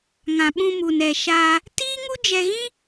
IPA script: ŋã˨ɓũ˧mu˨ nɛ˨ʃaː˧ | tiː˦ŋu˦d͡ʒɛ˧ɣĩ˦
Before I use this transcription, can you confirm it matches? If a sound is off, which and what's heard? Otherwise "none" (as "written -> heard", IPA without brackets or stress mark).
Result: none